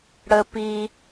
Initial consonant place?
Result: retroflex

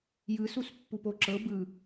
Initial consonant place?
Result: palatal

